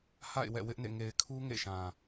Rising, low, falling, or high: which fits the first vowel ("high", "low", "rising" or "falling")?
falling